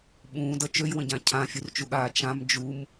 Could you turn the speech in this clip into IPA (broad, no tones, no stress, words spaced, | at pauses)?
ɓũːdʌ t͡ʃøjwə̃ɟã cʰãfʲurt͡ʃuɠaː t͡ʃãm d͡ʒum